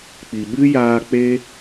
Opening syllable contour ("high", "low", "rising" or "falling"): low